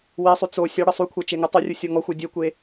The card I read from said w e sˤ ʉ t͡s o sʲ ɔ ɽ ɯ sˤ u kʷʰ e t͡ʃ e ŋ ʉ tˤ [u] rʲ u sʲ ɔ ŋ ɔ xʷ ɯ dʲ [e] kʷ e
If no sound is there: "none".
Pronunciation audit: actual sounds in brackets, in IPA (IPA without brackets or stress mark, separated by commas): o, e